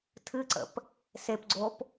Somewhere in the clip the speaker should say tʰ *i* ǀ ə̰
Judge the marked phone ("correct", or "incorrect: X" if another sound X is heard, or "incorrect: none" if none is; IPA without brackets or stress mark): incorrect: ɨ